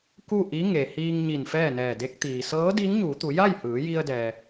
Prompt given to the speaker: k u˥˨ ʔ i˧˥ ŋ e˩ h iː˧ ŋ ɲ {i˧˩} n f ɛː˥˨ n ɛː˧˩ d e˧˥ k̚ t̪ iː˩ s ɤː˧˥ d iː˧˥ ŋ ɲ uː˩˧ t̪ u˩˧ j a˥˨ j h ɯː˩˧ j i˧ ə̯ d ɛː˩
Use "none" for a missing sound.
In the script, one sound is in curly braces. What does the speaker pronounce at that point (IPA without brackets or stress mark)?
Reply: i˧˩